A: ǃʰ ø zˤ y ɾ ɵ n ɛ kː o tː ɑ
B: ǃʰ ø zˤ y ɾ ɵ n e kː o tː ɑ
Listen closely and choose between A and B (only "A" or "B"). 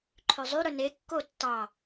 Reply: B